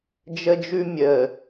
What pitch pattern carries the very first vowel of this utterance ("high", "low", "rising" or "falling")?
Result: high